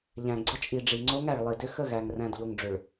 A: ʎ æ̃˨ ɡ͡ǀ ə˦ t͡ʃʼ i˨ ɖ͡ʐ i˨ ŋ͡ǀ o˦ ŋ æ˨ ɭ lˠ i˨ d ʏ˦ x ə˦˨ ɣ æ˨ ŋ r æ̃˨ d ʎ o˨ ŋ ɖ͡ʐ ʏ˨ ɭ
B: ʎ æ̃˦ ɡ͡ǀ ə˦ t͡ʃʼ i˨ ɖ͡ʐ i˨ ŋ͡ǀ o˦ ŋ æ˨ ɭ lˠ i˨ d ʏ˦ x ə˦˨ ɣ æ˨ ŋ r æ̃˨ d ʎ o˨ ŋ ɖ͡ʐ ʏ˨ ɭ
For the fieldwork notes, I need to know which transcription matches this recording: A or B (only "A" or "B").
A